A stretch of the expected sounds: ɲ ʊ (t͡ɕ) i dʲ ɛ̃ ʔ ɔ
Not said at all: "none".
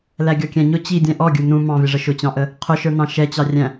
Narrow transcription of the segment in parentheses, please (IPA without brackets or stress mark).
t͡ɕ